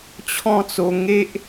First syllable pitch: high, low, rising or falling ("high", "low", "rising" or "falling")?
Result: falling